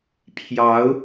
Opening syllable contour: rising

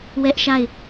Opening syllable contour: high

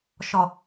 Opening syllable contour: low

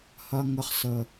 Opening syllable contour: high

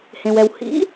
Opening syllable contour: low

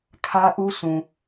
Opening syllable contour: high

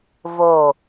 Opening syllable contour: low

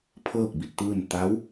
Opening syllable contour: falling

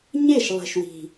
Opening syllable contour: falling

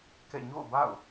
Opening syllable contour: falling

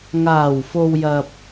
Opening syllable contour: low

